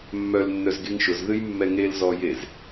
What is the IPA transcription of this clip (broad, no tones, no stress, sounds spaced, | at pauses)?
mː œ l nː œ z ɡ e ŋ ʃ ʊ z ð ɨ j mː ɛ ŋ e l z ɔ j e z